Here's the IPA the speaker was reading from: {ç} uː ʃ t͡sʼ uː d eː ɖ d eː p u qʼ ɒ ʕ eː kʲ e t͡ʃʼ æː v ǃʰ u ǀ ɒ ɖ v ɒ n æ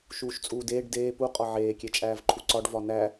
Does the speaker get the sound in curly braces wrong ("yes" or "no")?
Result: yes